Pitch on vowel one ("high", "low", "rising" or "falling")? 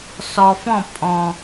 low